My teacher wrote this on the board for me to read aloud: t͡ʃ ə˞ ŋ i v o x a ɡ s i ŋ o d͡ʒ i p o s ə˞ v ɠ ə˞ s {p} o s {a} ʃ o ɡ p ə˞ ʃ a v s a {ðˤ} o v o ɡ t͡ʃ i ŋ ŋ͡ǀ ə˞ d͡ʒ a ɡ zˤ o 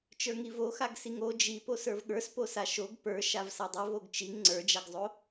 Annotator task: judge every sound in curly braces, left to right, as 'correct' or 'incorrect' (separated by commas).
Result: correct, correct, incorrect